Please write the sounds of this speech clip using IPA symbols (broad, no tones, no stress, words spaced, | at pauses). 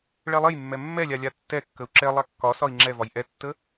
ɭɛlˠejmːɛ mːɛlʲa lʲatːɛkːəu̯ ǁɛlˠa kːɒsɒi̯ ŋ͡ǁɛvɒj ʔɛtːə